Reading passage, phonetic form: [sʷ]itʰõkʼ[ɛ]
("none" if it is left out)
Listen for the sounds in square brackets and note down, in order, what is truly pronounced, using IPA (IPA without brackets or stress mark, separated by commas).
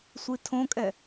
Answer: sʷ, ɛ